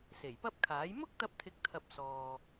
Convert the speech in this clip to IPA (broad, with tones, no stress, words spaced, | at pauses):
se˨˩jpɐ˥p̚kʰaː˨˥j mʊ˥k̚t̪ɐ˧p̚t̪ʰɪ˨˥k̚t̪ʰɐ˨p̚ sɔː˨